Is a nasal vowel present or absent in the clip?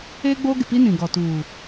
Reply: present